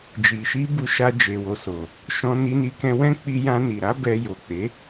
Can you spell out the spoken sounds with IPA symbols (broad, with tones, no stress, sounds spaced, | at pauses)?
d͡ʒ i˨ ʃ i˧ b u˧ ʃ a˧ d͡ʒ e˨ w o˨ s o˨ | ʃ ɔ̃˧ n i˧ n i˧ k ɛ̃˧ w ɛ̃˦ k͡p i˧ j ã˧ n i˨ ɾ a˨˦ b ɛ˧ j o˨ k͡p e˨˦